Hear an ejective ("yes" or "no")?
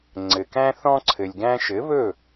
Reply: no